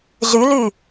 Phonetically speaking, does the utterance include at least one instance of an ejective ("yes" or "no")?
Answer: no